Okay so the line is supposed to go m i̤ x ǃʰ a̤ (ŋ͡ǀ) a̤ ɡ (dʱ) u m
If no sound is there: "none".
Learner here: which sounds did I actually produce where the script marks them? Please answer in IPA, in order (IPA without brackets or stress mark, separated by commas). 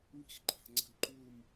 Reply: ŋ͡ǀ, ǃ